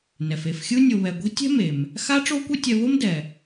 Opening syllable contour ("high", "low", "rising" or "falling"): low